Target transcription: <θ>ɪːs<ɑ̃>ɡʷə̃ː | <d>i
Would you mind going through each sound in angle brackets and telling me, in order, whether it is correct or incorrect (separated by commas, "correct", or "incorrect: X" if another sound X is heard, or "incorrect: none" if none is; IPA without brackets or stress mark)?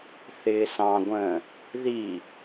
correct, correct, incorrect: ð